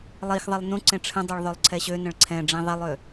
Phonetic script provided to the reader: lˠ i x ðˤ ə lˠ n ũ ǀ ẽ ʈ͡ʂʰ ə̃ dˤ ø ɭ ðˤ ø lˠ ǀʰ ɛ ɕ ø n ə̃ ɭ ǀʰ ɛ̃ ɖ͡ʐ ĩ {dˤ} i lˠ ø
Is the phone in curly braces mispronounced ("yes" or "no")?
yes